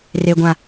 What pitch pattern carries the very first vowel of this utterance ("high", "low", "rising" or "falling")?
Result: high